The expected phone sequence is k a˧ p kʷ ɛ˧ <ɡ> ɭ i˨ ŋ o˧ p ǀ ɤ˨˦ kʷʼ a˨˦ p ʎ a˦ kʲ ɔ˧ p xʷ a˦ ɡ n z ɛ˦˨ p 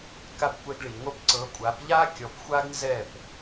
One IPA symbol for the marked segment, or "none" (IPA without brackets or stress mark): ɡ